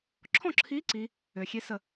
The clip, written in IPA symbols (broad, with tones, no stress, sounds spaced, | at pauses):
ǁʰ ɔ̃˥˩ ǁʰ iː˧˥ ǀ i˧˥ | øː˩ xʲ e˧˥ s ə˧˩